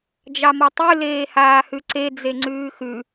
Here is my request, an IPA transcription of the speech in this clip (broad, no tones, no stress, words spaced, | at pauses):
d͡ʒɑmɔtˤʉ leːhaːhʉǀe d͡zeŋ͡ǀʉːxʉ